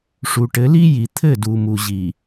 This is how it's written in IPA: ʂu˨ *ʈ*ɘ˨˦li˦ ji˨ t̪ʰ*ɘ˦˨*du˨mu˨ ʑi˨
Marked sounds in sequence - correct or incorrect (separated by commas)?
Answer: correct, correct